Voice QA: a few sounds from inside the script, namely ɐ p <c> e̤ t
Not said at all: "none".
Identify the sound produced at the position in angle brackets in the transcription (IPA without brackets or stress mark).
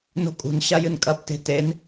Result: t